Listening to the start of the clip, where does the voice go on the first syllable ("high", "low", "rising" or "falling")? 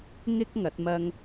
high